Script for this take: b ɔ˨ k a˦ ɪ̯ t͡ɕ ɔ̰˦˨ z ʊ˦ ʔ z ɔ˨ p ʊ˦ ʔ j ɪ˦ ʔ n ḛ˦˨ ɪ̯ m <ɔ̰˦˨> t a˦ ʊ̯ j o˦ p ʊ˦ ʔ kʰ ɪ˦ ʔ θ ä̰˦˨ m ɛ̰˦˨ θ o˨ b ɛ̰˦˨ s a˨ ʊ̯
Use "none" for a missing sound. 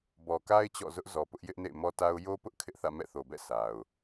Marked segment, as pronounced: ɔ˦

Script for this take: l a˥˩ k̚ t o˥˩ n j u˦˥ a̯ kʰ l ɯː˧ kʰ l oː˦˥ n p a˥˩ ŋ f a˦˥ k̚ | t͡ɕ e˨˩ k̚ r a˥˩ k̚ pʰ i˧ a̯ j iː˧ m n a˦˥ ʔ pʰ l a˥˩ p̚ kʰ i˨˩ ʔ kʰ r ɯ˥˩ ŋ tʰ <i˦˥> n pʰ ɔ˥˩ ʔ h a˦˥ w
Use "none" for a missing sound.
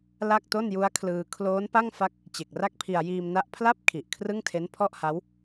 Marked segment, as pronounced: e˦˥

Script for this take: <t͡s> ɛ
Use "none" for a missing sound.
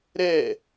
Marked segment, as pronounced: ɾ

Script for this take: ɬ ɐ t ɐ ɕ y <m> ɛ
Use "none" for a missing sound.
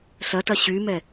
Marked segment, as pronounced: m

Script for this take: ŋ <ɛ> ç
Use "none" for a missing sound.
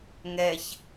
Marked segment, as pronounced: ɛ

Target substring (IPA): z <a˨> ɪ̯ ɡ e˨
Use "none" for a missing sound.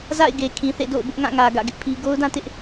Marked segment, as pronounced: a̰˦˨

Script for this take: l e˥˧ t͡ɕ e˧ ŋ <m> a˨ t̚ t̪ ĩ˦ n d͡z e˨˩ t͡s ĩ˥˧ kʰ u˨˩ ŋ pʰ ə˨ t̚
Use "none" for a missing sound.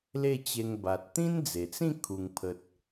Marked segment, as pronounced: b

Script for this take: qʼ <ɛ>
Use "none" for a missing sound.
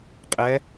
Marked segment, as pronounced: ɛ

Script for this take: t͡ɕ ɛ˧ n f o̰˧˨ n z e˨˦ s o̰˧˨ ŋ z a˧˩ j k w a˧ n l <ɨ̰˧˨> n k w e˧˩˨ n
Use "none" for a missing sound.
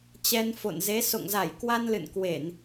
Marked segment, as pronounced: ɨ̰˧˨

